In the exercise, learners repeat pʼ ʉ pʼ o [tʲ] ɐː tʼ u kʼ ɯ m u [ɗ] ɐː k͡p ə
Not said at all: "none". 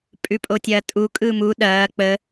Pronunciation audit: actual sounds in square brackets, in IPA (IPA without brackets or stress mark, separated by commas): tʲ, ɗ